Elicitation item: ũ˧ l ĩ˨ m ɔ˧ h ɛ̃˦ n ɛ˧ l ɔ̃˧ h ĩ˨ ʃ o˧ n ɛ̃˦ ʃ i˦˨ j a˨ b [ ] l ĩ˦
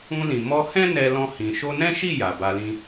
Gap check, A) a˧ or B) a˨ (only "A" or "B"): A